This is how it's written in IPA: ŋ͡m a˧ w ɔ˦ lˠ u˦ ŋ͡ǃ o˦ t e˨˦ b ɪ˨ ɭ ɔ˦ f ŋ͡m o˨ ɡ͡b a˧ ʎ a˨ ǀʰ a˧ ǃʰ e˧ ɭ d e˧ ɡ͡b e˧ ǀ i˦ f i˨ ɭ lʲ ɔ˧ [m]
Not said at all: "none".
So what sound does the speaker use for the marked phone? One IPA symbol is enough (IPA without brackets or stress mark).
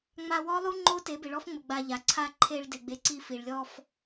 f